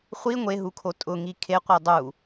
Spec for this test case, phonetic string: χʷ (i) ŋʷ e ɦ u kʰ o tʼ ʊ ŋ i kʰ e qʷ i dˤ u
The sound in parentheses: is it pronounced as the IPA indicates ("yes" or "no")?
yes